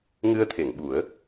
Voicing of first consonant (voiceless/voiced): voiced